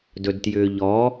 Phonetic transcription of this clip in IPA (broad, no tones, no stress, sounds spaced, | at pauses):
d ɵ d t j ʏː ʎ ɔ